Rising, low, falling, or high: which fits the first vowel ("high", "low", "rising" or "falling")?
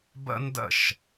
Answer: high